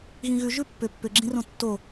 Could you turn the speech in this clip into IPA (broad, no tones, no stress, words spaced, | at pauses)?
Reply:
ɣĩɣʉ ʒʉpːʏ pːʏɡ͡ǁĩrõ tːo